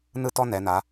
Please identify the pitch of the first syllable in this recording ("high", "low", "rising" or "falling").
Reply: high